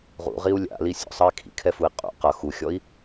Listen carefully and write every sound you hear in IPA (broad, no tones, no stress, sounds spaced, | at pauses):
ʁ ṵ ʁ i u̯ lʲ a̰ l i sʲ ɔ̰ sˤ ʌ i̯ kʰ ḭ kʰ ɛ f u i̯ qʼ ṵ q ʌ x u xʲ ɔ i̯